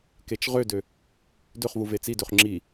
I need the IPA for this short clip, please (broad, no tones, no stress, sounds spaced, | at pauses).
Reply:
k e t͡ʃ ʁ ø d ø | d ø χ v u v e t͡s i d ø χ ŋ͡ǁ i